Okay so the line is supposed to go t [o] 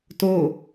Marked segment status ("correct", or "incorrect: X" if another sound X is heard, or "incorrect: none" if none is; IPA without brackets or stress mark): correct